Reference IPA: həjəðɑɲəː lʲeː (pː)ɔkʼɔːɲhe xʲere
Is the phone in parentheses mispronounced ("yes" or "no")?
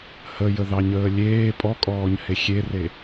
yes